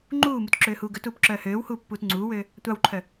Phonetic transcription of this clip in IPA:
ŋ͡ǃuːmutǁøːhuː ɡœtuːpǁœː høːwhuːpːuːt ŋ͡ǀuːwøː | tʷɑwǃʰœ

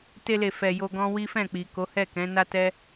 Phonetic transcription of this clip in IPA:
te˧le˨fɛ˨ jo˧ɡɔ̃˦ wi˦fɛ̃˦˨ k͡pi˨ko˨˦ hɛ˦˨kɛ̃˨˦ na˦ tɛ˦

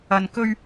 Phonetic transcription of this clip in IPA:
ɐ˨nkɵ˧ɥ

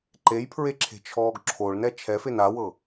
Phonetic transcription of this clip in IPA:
ǃejpʰɹeǁʰe̤t͡ʃʰɔːɡ ǁʰoɭnɛ t͡ʃʰɛfen awɤ

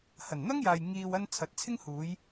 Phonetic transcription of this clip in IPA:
hɐ˨˩nn̪ɐ˥ŋjaː˨j ŋiː˨wɐ˧n t͡sʰɐ˨˥t̚t͡sʰɪ˥ŋhuː˨˧j

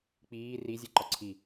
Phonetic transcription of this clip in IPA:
k͡piː rizʲeǃɒ ǀʰi

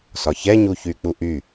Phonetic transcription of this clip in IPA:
sɒçɛɲuçy k͡puʔy

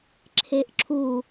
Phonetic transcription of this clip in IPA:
ǁʰeʔǁʰu

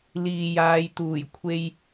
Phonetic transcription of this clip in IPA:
liː˨jaː˨˧jt̪uː˨˩j kʷʰe˧j

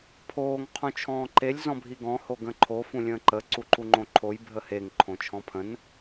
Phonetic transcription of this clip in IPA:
pʰoːŋ qʰũt͡ʃʰɔ̃ːǃelʲ zɔ̃bʱiɡɔ̃ hoɡə̃ǃʰo fũlʲə̃ːǃə ǀuǃuŋ͡ǃõǃʰoj bʱəheŋ ǃʰõt͡ʃʰɔ̃pʰə̃n

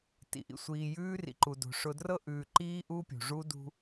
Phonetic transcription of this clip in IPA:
tḭ˨ʔḭ˨ sʷiː˨jʉː˦rḭ˨ǃu˨ do̤˨ ʂʊ˨drɤ˦ʔʉː˨ǃiː˦ ʔu˦pʲṳ˨ ʐu˦dṳ˦

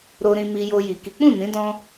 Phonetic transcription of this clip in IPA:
ɾo˧ɾĩ˧ mi˧jo˧ji˨ ki˨˦k͡pũ˦˨nĩ˨˦ dɔ̃˦

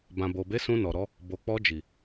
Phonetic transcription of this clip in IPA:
bã˨bo˨be˨˦ sũ˧nɔ˨ɾɔ˨˦ | bo˨k͡pɔ˧d͡ʒi˨

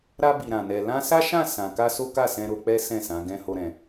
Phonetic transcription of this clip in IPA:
ɾa˧bi˨ɾã˨nɛ˨ lã˧sa˦ʃã˦˨ sã˨ka˧ so˦ka˦˨sɛ̃˧ ɾo˧k͡pɛ˦ sɛ̃˦˨sã˨˦ ɡɛ̃˦ho˦ɾɛ̃˧

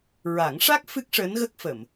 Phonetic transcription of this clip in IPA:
ɹa˨˩˦ŋʂa˦˥k̚ fɨ˦˥k̚ʂəː˧˥nɣə˦˥k̚ fə˨˩˨m

